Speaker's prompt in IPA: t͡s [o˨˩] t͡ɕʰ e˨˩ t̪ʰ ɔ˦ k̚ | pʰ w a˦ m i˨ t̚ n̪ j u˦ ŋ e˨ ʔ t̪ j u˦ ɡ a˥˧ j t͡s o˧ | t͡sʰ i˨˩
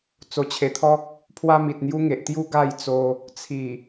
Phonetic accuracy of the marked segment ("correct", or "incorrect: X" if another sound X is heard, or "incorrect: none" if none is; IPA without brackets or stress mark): correct